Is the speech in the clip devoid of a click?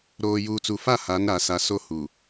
yes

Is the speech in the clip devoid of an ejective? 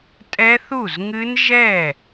no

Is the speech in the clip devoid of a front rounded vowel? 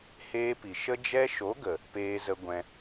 yes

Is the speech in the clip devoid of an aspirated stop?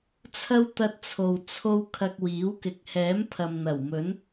no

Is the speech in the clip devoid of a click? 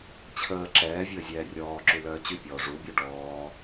no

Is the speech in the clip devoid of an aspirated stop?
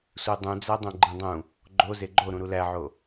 yes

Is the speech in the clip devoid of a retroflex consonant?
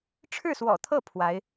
no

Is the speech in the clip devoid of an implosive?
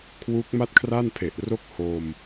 yes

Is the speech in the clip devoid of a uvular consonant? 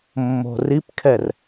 yes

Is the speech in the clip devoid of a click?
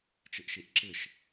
no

